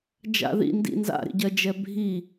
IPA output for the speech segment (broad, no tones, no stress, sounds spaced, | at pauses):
d͡ʒ a̰ ð ḭ n d ḭ n z a̰ ɾ ḭ ɟ ɜ d͡ʒ ɛ bʱ i